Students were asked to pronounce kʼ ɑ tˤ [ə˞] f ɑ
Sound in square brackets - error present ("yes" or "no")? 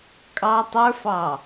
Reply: no